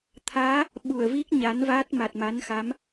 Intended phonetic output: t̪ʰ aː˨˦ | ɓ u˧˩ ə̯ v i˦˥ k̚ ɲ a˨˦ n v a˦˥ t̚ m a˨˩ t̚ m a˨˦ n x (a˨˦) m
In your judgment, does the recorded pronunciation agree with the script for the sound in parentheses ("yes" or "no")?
yes